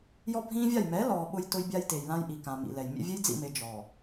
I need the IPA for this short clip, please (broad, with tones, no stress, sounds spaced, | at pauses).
j ɔ˦ bʱ ĩː˦ vʲ a˦˨ j m ɛ˨˦ l ɔː˨ ɓ ʊ˦ j t ʊ˦ j bʲ a˦ j t e˨ j l ã˦ j ʔ i˨ k ã˨ m ḭ˨ l ɛ˨ j mʲ ḛ˦ vʲ e˦ j d͡z ḭ˦˨ m e˨ d͡ʒ ɔ˨